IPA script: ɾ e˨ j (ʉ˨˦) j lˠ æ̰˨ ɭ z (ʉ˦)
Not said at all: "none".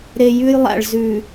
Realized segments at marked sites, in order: ʉ˦, ʉ˨

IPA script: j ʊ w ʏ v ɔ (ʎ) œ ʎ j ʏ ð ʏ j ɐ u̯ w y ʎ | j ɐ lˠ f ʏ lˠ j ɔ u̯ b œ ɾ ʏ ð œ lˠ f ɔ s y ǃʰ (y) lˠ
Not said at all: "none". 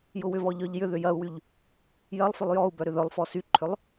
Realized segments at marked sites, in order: ʎ, ʏ

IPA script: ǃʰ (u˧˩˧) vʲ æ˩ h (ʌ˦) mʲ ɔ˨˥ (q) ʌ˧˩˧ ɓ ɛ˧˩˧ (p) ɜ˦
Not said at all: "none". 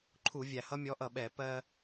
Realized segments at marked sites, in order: u˧˩˧, ʌ˦, ʔ, p

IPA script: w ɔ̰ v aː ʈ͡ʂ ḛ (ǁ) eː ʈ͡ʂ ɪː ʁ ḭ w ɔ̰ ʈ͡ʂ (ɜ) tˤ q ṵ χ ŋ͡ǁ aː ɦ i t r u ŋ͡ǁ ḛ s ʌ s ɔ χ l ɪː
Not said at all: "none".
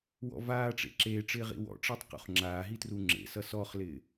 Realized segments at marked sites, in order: ǁ, ɜ

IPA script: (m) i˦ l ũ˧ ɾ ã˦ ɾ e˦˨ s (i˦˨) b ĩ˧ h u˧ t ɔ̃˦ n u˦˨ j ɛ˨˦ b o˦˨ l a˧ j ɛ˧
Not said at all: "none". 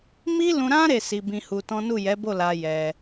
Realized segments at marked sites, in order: m, i˧

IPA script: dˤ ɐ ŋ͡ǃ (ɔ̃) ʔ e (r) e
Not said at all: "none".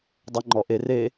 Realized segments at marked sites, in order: ɔ, r

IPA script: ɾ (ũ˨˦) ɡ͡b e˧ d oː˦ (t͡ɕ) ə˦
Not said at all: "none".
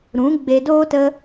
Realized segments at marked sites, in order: ũ˨˦, t

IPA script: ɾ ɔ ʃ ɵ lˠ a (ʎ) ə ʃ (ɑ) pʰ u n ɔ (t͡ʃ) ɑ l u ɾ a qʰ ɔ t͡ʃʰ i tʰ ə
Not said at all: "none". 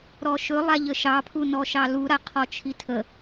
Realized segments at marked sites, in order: ʎ, ɑ, ʃ

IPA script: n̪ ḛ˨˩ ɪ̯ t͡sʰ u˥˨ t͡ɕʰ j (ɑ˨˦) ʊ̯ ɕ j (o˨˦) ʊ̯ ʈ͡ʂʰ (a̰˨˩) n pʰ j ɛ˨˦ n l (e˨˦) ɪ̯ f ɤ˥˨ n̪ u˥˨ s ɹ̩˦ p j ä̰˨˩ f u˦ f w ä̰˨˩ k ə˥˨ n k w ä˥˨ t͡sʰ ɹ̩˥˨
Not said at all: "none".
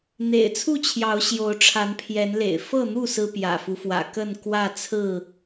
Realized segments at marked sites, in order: ɑ˨˦, o˨˦, a˨˦, ḛ˨˩

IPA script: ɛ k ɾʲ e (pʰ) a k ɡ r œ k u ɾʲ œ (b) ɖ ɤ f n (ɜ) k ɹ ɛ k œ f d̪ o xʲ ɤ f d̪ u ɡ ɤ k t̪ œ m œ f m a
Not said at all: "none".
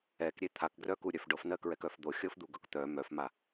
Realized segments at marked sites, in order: t̪ʰ, f, ɜ

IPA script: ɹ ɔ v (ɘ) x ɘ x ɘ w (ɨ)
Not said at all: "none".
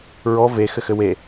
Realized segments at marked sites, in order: e, e

